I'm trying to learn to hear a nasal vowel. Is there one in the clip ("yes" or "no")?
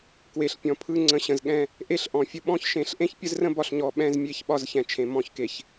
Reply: yes